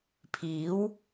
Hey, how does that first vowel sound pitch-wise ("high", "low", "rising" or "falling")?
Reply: rising